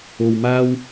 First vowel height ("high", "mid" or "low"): mid